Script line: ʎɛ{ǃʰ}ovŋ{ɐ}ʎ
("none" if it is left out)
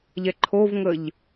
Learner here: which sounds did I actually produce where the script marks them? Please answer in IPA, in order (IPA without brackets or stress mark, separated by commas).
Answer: ǃʰ, ə